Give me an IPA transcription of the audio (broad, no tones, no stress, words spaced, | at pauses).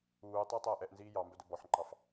uːtˤæ tˤæːʔɛʔnziː jɑ mbœdɵbɔħŋ͡ǃɑf